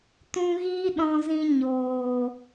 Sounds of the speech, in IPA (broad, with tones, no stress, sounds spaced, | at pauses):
t ũ˧ ɣ iː˦ ɗ ɔ̃˧ z ĩ˧ ɲ oː˨